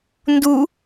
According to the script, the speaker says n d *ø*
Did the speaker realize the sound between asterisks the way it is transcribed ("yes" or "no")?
no